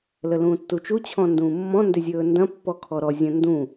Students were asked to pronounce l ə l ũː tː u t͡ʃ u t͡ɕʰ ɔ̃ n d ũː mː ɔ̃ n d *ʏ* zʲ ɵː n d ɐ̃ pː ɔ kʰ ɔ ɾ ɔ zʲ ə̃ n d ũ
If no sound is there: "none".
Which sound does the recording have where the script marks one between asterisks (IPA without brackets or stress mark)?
ʏ